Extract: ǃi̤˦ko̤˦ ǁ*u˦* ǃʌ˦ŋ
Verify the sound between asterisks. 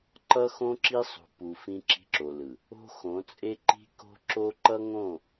incorrect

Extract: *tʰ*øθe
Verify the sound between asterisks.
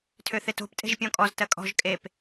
correct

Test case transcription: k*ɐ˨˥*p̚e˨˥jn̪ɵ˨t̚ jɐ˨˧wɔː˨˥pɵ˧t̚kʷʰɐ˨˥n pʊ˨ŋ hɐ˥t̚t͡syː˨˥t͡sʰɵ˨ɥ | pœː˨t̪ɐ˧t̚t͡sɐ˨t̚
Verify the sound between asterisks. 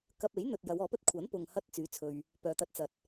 incorrect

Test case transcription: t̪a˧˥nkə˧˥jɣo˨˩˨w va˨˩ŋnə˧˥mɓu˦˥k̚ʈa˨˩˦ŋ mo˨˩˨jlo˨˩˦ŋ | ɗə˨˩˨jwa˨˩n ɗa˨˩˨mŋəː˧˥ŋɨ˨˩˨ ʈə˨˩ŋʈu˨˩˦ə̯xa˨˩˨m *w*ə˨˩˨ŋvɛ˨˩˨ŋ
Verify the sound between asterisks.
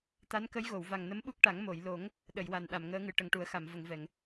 incorrect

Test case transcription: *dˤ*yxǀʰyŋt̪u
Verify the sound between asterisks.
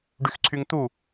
incorrect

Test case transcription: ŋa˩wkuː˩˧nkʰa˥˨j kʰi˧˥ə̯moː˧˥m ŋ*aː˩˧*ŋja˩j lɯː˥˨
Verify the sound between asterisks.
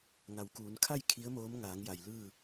correct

